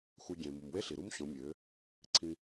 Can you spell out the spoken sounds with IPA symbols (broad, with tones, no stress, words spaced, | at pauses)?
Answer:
xʷʌ˧ɟẽ˨ mu˨mwe˦ɬi˨ɾu˦m ɕõ˨˦mʲø˨˦ | ǀʰĩ˧